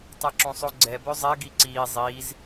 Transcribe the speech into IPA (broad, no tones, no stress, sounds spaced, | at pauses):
tˤ ɛ ǁ õ sˤ o ɡ͡ǀ ɛ b ø zˤ ɛ ɡ i ǀ iː zˤ iː z